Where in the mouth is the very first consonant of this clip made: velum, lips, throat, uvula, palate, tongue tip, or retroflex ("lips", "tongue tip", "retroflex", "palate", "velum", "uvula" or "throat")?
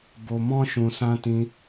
lips